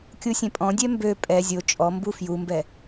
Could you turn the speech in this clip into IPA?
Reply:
kʲusʲɛ̃pʼɔ̃dʲɛ mbø pʼɛ zʲo t͡ʃʼɔmbu fjumbɛ

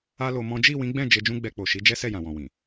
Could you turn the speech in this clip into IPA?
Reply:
a˦lo˧mɔ̃˦ d͡ʒi˦˨wĩ˨˦ɡ͡bɛ̃˦˨ d͡ʒe˧d͡ʒũ˦ɡ͡bɛ˧k͡po˨ ʃi˨˦d͡ʒɛ˦sɛ˦˨ jã˨wɔ̃˨wĩ˨

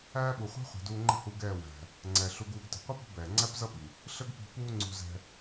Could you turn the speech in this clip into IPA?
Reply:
æː˦ɓu˨χʷɛ̤˦ χʷi̤˨duː˧ŋ͡ǃə̤˦ hu˧ɡɛː˦˨ wæ̤˨ | ŋ͡ǀɛ˨ ɬu˧ɡuː˧ɡtə̤˨ qʷi˦pṳ˧ bɛː˨ ŋ͡ǀæ˦pzʌ˦ ɓi˨ | ɬə˦ɡpi̤˧ puː˦ŋ͡ǀṳ˧ zɛ̤˧

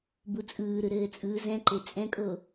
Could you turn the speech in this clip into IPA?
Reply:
but͡sʼɯːɾɯ ɾɘːt͡sʼɯːzɛ̃ǃe t͡sʼɛ̃kʼo

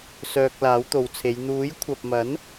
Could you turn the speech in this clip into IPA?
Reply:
sœː˧k̚laː˨˥wt̪o˨wt͡sʰe˨˧j n̪uː˨˥j kʷʰɐ˨p̚mɐ˨˥n

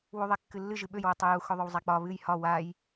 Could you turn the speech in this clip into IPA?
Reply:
wuðˤɛkːɨlːɨ ʒɨɓøj wutˤɵju xɵðˤɵwzˤak͡pɒ βɨj hɒ waj

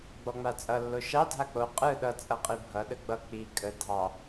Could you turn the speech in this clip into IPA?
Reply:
ɡ͡bɔŋ͡mat͡sʼʌ lːoʃɑ dʱak͡po qʼɯ ɗʌ t͡sʼʌqʼibʱʌ ɗəɡ͡bʌ k͡pi kʼə dʱɑ

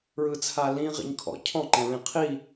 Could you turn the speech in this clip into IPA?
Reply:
ɹɯt͡sʰalĩ ʁḭɲkʰɔ̰ cʰɔ̃ ǃɛ̃ɹĩqʰi

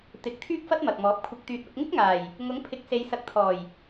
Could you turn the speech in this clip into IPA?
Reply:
t̪ɪ˨˥k̚ t̪ʰyː˥k̚fɐ˥t̚mɐ˨k̚mɔː˨˥p̚ kʷʰɪ˨k̚t̪yː˨t̚ ɐ˧p̚ŋɪ˥k̚ŋaː˨˩j | ŋʊ˨˥ŋpʰɪ˨˥k̚se˨˧j sɐ˨˥k̚t̪ʰɔː˨˩j

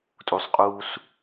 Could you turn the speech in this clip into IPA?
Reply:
tʼusˤqʼuːs

